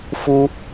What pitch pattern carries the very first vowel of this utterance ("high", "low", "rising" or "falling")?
high